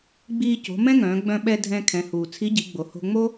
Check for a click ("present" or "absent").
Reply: absent